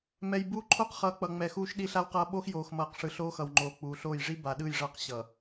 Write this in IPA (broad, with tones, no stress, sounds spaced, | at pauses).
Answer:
m ɛ˨ j b uː˦ ǃʰ oː˦ q χ ʌː˨˦ k͡p ʌ˨ ŋ͡m ɛ˨ x uː˦ ʃ ɗ i˦ ɬ a˦ w q ʌː˦ ɓ o˦ x j oː˨ x m ʌː˨ q ʂ ɯ˨ ɬ oː˦ x ʌ˨ w ŋ͡ǃ oː˨ k͡p uː˨ ɬ oː˦˨ j ʐ i˦ b a˨ ɗ ɯ˦˨ j ʐ ʌ˦ q ɕ ʌ˨